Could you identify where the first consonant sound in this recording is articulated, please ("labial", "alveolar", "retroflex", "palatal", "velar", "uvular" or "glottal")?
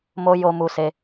labial